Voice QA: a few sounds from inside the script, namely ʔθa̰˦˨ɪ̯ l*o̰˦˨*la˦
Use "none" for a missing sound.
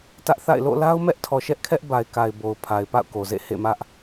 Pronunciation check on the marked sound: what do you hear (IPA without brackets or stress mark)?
o̰˦˨